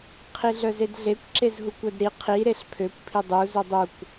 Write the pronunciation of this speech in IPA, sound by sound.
qʰ i ɮ œ z e d ɮ e kʷ ǁ e z ɦ u kʷ œ d ɾ i qʰ i ɾ e ɬ pʰ ø kʷ pʰ i dˤ u z u dˤ u kʷ

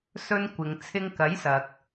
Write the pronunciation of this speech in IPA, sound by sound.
s ɵ˧ n kʷ ɪ˨ ŋ t͡sʰ ɪ˧ ŋ k ɐ˨˥ j s ɐ˨ k̚

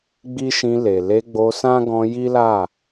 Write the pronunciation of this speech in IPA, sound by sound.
ɡ͡b i˦ ʃ ĩ˧ l e˨ l e˧ ɡ͡b o˧ s ã˦ ɡ ɔ̃˧ j i˦ l a˦˨

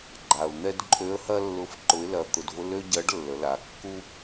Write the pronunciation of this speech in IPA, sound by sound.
ɡ͡ǃ a˩ ʊ̯ n̪ ɛ˧ d ǃʼ ø˧˥ ə̯ h ɐ˥ lː ʊ˧˥ f ǃ ʊ˧˥ ɪ̯ l ɐ˧ t̪ ʊ˧ d v ʊ˥ l ø˥ ɟ ɐ˧˥ ɖ lː ə˩˧ l a˩˧ kː u˥

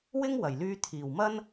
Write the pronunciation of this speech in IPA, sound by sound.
w ɪ˥ ŋ w ɐ˨˩ j l yː˧ t̪ʰ iː˨˩ w m ɐ˥ n

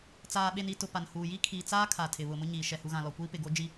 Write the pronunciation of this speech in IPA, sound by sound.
t͡s aː˨ ɓ e˨ n i˨ t ʊ˨ p a˨ n h uː˨ j i˦ kʰ iː˨ t͡s aː˦ kʰ a˨ tʰ ɪ˨ β ʊ˨ m ʊ˦ ɲ iː˨ ʃ ɛ˨ h u˨ ɣ ã˨ l ɔ˨ kʷ iː˦ p ɪ˨ ɡ o˦ d͡ʒ i˦

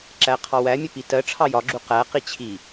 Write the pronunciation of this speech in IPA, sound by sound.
ǁ æ qʰ ɑ w æ mʲ ə p i t ɜ ʈ͡ʂʰ ɑ j ɒ ɡ͡ǁ u q æ q i t͡ɕʰ i

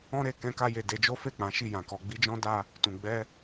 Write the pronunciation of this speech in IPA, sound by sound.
ɔ̃˦ ɾ e˧ k ɛ̃˧ k a˧ j e˨ d e˧ d͡ʒ o˦ f e˦˨ k͡p ã˨˦ ʃ i˦˨ j ã˨ k ɔ˧ ɡ͡b i˦ d͡ʒ ɔ̃˦ d a˧ | t ũ˨ ɡ͡b ɛ˧

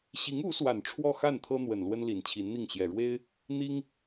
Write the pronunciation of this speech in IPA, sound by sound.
ɕ i˧˥ ŋ u˧˥ s w a˨˩ n ʈ͡ʂʰ w ɔ˥˧ x a˥˩ n t̪ʰ ɤ˥ n̪ w ə˨˩ n l w ə˥ n l i˨˩ n t͡ɕʰ i˧˥ n n̪ i˥˩ ŋ ɕ j ɛ˨˩ ɻ w e˥ ɪ̯ | n̪ i˥ ŋ

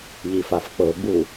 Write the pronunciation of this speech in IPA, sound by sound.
ʎ i f a f k͡p ɤ ɡ͡b u

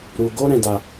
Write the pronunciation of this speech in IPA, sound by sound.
ɾ u˧ ɡ o˦ ɾ ɛ̃˧ d a˧

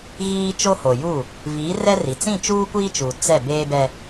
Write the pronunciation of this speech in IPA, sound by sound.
ɣ iː˦ t͡ʃ o˦ h o˨ j u˦˨ | v iː˨˦ r ɛ˦ r i˨ t͡s ĩ˦˨ t͡ʃ uː˦ kʷ iː˦ t͡ʃ u˨ t͡s ɛ˦˨ b eː˦ b ɛ˦

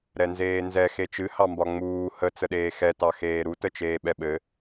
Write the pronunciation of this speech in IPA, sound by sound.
ɾ ɛ n z eː n z ɛ x e t͡ʃ ɨ h ɑ m b ɒ ŋ͡m uː h ə t͡s ə ɗ eː x ɛ t ɑ x eː ɾ u t ə t͡ʃ eː ɓ ɛ ɓ ɘ

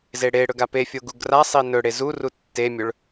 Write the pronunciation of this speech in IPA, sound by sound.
z e ɽ e ɽ ɵ ɡ a p e fʲ o ɡ u ɡ r a sˤ i n ɵ ɽ e z u r u tː e mʲ ɵ ɭ

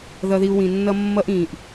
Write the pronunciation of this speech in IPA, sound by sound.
ð ʌ˨ ð i˨ u̯ w ĩ˨ nː ʌ˦ mː ʌ˦ ʔ ĩː˨ ʔ

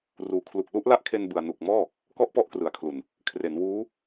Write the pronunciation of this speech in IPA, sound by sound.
r uː˨˩ kʰ l u˨˩ k̚ l u˥˩ ʔ l a˦˥ ʔ kʰ e˧ n b ɯ˨˩ a̯ n u˨˩ k̚ m ɔː˥˩ | k ɔ˥˩ ʔ p ɔ˥˩ ʔ k r ɯ˨˩ a̯ kʰ l u˨˩ n | kʰ r e˩˦ n w uː˦˥

